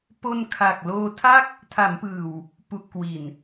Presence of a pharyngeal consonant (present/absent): absent